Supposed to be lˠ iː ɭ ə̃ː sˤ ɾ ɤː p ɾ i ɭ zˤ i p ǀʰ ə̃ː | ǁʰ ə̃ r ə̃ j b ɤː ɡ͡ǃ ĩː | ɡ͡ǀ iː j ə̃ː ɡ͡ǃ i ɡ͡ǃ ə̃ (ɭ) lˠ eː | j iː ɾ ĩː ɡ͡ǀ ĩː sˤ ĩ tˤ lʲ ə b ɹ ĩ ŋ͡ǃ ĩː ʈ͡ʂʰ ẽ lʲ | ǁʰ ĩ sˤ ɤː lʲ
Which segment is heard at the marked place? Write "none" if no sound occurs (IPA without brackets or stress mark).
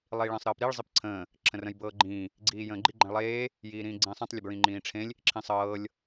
ɭ